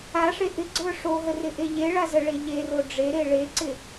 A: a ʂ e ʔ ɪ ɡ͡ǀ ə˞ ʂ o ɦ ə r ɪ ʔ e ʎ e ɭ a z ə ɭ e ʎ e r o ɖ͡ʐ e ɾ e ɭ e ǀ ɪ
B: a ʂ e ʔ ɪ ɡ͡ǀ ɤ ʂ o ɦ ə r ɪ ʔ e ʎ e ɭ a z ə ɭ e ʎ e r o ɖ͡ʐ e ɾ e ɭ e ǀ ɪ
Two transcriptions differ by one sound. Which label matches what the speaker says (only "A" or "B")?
A